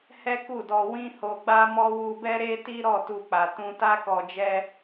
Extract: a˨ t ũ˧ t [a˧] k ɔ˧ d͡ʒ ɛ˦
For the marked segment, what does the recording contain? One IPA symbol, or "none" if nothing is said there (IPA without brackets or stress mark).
a˦